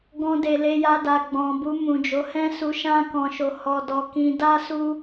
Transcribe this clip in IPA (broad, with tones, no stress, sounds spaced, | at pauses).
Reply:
ɡ ɔ̃˧ d e˨ l e˧ j a˧ d a˨ ɡ͡b ɔ̃˨ b u˧ m ũ˨ d͡ʒ o˨˦ h ɛ̃˦ s u˧ ʃ ã˦ k ɔ̃˧ ʃ o˧ h ɔ˧ d ɔ˧ k ĩ˧ d a˦ s u˦